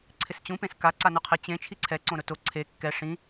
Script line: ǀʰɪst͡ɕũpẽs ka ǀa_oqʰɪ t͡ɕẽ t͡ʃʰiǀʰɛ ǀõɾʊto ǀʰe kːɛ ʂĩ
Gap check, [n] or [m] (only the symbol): n